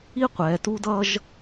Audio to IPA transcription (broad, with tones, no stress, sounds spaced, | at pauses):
i˦ qʷ ɛ˨ t u˦ d ʌ˦ ʒ